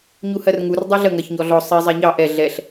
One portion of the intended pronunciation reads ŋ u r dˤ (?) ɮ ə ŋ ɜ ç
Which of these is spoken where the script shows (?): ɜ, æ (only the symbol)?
ɜ